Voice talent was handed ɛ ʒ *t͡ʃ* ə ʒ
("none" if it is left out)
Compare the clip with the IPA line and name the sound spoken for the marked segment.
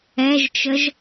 t͡ʃ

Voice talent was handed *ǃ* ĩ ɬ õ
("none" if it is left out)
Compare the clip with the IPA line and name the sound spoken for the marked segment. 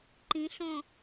ǃ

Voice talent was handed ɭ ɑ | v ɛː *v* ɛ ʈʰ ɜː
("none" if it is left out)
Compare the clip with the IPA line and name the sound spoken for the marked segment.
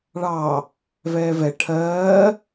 v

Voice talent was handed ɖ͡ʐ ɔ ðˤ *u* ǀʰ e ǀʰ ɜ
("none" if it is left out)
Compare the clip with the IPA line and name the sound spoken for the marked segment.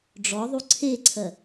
u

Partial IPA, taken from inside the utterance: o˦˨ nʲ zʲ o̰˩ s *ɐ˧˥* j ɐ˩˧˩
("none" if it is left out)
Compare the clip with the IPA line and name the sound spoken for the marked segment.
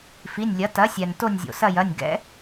ɐ˦˨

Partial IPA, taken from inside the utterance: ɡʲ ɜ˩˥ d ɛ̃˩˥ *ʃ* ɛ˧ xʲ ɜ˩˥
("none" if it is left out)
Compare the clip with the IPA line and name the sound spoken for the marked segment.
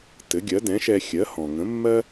ʃ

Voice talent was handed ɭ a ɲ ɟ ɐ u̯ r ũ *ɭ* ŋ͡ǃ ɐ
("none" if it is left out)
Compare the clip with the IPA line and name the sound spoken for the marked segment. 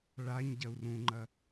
none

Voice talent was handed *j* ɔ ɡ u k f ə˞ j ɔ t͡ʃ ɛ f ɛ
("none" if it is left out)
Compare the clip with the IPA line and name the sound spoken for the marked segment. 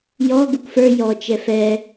j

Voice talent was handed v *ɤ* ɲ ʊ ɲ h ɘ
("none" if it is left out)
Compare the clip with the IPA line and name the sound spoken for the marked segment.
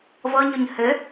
ɤ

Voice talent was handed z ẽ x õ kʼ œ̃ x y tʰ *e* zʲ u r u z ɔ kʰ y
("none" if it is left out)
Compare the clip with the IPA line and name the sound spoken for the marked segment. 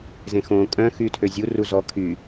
ø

